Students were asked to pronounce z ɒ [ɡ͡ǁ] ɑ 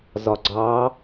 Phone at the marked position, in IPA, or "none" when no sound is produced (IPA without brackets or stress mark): ɡ͡ǀ